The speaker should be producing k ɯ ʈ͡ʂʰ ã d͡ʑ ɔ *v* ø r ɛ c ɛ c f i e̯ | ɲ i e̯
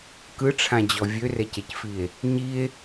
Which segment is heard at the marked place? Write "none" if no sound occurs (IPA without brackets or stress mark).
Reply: vʲ